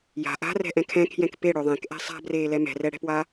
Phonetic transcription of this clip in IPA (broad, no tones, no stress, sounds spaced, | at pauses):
j a̤ ʔ a̤ r ɛ̤ ʔ ɛ̃ kʰ ɛ̃ kʰ j ɛ̃ k p e ɽ ø ðˤ ẽ k ʔ ɛ̤ sˤ a̤ b r eː l ɛ m ɛ̤ r ɛ ɽ ɛ̤ p w a